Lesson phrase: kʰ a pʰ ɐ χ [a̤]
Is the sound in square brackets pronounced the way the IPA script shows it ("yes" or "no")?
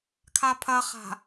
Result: yes